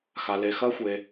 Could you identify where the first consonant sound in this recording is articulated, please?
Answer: velar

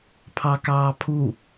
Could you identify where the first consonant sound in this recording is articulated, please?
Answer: labial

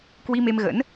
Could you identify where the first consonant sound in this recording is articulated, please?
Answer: velar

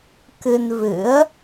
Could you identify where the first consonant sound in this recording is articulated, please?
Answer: velar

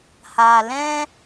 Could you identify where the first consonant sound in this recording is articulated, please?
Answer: glottal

